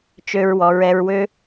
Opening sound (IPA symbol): t͡ʃ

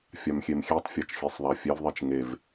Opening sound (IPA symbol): fʲ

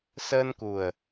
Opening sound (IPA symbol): s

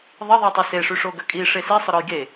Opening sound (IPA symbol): ðˤ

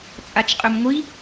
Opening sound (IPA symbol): t͡sʼ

